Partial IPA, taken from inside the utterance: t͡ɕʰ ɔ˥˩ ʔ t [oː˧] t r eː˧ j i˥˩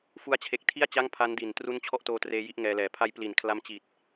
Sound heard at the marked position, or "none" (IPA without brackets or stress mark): oː˧